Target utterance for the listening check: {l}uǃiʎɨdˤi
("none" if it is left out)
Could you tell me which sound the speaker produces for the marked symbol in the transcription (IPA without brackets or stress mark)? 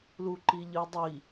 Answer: l